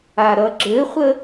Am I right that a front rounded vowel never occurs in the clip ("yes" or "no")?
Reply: yes